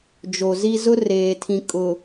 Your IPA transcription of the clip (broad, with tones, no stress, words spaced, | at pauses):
d͡ʒo˨zi˦ zʊ˦ reː˨tʰĩ˨ kʼʊ˨